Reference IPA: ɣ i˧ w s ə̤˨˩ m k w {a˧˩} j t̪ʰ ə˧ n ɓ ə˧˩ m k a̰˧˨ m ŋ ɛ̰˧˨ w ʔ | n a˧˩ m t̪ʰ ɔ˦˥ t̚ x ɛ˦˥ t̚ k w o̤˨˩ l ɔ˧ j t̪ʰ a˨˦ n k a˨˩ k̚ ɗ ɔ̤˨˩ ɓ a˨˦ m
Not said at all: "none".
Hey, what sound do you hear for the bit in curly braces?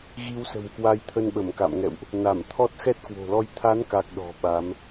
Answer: a˨˦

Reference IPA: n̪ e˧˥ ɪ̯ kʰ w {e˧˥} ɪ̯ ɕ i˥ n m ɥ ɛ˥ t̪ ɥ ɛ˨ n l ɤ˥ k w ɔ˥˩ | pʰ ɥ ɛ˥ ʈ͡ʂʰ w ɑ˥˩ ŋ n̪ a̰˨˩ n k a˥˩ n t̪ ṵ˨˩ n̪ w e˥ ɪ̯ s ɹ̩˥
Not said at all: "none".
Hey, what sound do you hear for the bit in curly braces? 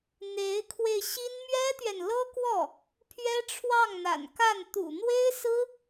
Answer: e˧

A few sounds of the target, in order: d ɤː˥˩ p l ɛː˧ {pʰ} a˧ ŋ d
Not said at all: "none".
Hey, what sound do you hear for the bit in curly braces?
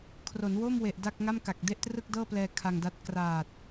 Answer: kʰ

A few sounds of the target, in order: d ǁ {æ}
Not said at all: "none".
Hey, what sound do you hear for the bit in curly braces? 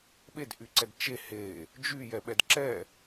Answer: ɛ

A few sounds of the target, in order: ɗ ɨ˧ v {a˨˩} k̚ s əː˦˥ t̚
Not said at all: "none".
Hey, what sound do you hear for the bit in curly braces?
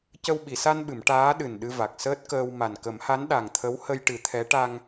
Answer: a˨˩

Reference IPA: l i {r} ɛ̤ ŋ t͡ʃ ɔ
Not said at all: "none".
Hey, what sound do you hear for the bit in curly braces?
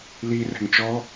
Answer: r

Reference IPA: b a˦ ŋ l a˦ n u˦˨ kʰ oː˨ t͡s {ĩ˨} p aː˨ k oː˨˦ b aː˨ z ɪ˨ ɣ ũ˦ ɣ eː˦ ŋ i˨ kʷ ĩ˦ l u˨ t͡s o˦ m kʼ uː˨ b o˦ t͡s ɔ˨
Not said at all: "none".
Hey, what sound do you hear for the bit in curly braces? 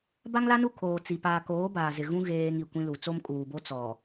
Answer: i˨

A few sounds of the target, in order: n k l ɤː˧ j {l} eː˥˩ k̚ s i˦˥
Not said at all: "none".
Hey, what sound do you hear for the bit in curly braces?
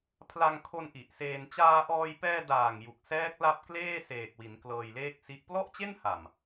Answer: l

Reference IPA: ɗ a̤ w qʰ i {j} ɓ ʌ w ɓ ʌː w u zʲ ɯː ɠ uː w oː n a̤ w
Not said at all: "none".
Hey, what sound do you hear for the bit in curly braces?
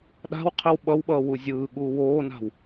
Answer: w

